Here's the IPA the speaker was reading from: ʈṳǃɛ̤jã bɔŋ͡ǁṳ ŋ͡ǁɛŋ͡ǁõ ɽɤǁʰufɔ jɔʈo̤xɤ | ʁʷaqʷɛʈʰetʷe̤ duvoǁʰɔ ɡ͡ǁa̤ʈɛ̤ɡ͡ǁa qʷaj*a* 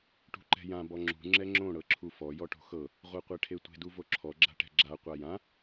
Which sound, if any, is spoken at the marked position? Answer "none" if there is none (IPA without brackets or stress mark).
ã